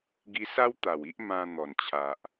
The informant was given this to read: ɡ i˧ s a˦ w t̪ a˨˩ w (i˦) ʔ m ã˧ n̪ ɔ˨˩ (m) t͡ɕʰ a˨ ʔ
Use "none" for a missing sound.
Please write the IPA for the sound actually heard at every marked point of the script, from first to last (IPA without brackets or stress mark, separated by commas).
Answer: i˦, n